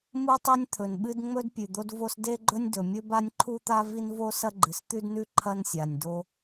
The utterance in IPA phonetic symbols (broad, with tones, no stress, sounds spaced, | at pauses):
m u˥ tˤ e˥ nʲ t̪ʰ ɵ˩ n ɓ ɨ˥ d ŋ͡m ɵ˥ d pʲ ʉ˩ d̪ o˥ d v o˥ s d e˥ ɡ͡ǃ ɵ˥ nʲ d ɵ˩ mʲ ɵ˥ b a˥ nʲ ǃʰ u˥ t̪ a˥ v i˥ n v o˥ s ɐ˥ ɡ͡ǃ ɨ˩ s t̪ ʉ˥ d n ʉ˥ ǃʰ ɐ˥ n sʲ a˩ nʲ d o˥